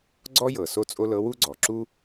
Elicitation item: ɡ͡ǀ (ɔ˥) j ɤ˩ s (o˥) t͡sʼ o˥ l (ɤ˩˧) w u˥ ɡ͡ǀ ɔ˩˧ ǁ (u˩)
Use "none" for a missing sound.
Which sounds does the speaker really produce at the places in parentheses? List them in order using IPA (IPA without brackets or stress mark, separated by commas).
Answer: ɔ˥, o˥, ɤ˧˥, u˥